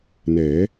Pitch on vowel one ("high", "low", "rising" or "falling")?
rising